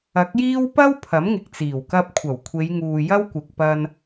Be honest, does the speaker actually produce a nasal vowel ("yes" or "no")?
no